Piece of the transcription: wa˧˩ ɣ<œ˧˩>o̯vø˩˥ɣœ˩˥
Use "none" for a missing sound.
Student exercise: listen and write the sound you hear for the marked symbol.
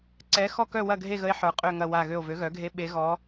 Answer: ø˧˩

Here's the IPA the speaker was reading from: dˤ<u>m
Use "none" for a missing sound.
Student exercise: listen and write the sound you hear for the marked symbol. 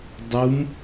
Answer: u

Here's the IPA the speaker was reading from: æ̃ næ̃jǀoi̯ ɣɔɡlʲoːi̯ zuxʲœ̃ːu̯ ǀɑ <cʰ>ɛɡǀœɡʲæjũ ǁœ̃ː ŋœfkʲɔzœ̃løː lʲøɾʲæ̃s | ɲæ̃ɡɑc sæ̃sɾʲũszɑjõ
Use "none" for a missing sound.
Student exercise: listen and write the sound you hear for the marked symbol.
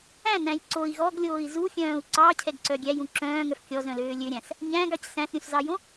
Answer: cʰ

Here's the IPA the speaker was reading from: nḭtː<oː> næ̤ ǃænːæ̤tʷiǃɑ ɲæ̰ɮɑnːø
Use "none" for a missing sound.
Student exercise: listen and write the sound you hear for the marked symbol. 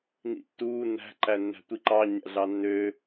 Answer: uː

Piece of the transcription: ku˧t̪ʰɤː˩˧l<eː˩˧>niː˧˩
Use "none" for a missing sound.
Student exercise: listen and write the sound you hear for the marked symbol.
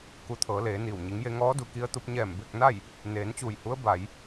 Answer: eː˩˧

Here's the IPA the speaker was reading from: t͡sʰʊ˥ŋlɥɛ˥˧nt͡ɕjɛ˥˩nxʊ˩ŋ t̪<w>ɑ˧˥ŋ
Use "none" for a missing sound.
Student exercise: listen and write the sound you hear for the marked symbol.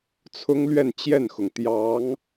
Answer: j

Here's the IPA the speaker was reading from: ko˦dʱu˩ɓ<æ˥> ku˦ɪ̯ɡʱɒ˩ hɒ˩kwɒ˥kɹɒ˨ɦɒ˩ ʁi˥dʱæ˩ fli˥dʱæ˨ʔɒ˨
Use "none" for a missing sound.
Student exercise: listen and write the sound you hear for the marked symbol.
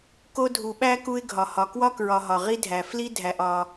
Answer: æ˥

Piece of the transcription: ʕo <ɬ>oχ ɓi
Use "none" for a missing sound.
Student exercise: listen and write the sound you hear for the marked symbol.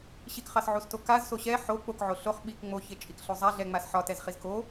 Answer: ɬ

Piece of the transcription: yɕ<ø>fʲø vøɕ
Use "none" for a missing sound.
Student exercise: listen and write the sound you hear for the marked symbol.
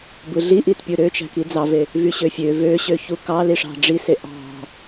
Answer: ø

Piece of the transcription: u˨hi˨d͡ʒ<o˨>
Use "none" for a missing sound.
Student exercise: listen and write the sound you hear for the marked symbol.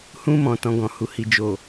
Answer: o˨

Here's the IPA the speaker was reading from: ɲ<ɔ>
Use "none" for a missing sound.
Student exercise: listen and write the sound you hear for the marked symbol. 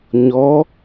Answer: ɔ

